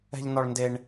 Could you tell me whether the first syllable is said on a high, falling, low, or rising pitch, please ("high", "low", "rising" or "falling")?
high